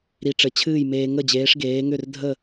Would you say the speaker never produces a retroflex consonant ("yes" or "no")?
no